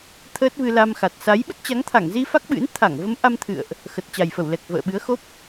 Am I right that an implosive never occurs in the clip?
no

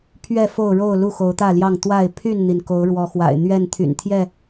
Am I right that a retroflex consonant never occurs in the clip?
no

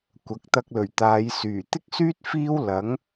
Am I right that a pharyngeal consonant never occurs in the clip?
yes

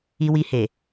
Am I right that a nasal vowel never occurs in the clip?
yes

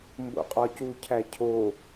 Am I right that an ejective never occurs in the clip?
no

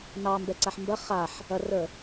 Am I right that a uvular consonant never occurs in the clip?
no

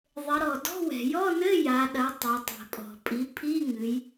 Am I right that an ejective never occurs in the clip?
no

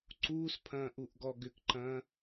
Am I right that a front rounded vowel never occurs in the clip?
no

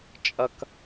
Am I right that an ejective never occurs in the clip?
no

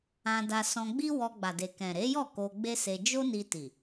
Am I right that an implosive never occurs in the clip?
yes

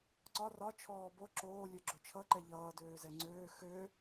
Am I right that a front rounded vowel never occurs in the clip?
no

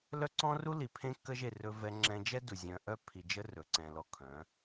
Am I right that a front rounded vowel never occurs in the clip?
no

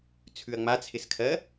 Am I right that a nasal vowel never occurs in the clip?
yes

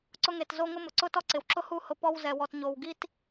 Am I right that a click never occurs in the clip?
no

